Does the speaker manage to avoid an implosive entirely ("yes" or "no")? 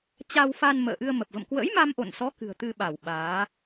no